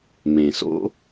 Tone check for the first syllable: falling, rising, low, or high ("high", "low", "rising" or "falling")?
low